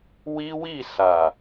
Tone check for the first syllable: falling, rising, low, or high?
high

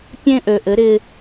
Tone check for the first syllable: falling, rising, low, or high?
high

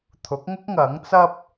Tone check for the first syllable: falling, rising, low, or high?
rising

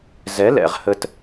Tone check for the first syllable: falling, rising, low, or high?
rising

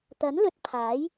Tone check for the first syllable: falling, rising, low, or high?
rising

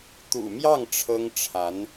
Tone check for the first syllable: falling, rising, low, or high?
low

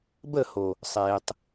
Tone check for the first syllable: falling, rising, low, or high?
falling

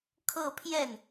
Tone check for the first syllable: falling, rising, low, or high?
falling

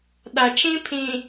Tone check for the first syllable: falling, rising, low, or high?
low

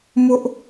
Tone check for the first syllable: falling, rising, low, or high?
high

